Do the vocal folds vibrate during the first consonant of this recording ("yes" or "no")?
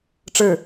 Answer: no